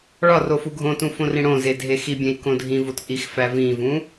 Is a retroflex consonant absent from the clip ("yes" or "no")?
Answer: no